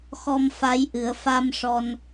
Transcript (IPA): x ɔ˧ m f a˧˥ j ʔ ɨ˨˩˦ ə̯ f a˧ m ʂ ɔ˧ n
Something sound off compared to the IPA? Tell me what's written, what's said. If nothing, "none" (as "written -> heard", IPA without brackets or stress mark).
none